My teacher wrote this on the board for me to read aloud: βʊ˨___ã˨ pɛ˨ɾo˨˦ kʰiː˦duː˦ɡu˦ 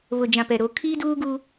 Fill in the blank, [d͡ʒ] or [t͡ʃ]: d͡ʒ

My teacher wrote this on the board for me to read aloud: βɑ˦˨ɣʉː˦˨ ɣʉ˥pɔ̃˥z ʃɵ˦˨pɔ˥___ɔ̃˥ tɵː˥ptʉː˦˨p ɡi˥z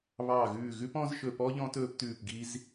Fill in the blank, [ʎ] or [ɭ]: ʎ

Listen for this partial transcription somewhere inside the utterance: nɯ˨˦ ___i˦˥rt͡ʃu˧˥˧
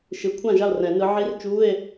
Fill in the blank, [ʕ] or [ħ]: ʕ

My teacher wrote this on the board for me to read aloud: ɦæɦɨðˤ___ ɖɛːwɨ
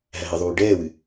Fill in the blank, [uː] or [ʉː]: uː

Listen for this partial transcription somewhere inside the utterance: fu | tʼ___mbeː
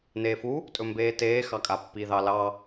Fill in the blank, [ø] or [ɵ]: ɵ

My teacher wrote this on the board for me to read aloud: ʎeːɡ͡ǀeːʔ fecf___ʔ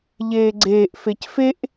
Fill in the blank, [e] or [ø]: e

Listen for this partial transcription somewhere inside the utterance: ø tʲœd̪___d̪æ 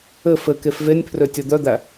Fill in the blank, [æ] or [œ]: œ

